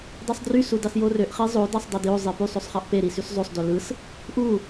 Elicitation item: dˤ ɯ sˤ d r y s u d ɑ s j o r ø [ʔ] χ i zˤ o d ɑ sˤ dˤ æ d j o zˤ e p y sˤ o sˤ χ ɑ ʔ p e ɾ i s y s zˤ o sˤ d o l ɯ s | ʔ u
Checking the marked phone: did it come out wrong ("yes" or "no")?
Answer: no